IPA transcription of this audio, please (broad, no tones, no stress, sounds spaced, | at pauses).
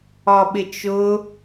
ɒ ɓ ɪ t͡ʃ ʊ